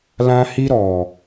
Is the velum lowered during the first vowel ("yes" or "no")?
yes